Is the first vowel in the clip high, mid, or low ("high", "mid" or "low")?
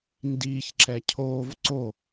high